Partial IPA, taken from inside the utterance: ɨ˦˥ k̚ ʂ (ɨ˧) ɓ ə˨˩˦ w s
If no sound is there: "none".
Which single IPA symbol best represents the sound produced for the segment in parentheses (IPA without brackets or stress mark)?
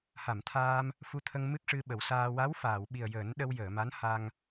ɨ˧